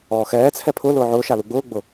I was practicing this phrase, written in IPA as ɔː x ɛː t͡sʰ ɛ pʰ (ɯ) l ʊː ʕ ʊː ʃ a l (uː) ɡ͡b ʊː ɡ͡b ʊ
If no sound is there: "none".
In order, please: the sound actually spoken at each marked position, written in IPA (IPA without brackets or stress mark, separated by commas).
ʊ, u